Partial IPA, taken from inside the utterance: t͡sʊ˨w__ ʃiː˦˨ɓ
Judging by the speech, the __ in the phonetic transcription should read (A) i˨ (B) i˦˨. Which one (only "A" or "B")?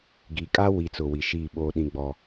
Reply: A